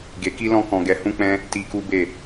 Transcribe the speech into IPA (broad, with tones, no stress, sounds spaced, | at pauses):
ɡ e˧ k i˦ l ɔ̃˦ k ɔ̃˧ ɡ ɛ˧ h ũ˦ k͡p ɛ̃˦ | t i˧ k u˦ b e˦˨